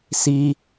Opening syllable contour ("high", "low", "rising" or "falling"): high